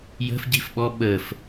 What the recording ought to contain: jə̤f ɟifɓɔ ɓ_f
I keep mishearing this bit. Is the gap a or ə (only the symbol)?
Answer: ə